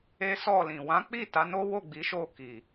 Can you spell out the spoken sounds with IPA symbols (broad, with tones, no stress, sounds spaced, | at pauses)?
e˦ s ɔ˦˨ l ĩ˨ w ã˨˦ k͡p i˦˨ t a˨˦ n o˦ w o˦˨ ɡ͡b i˨˦ ʃ o˦˨ k i˨